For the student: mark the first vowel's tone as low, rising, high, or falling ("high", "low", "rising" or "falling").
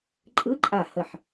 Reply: rising